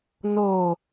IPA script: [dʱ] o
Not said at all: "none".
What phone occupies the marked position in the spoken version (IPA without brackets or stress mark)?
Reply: n